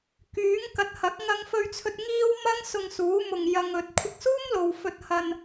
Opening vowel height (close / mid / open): close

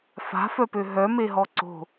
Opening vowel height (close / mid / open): open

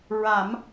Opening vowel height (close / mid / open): open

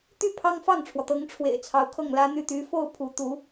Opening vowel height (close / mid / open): close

